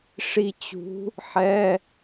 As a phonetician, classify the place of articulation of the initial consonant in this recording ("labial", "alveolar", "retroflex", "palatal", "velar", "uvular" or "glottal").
retroflex